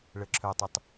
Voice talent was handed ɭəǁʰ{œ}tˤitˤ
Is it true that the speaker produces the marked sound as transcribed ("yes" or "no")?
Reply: yes